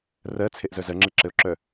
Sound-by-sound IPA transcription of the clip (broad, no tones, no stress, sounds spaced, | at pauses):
r ɜ t͡sʰ e ʔ z œ z ɜ ŋ͡ǁ e ǁ ɘ o̯ ǁ œ